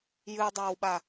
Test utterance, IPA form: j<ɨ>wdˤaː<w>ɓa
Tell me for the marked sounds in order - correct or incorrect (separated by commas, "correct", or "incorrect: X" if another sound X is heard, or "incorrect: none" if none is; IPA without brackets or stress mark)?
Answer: correct, correct